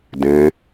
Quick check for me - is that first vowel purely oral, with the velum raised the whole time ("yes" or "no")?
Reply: no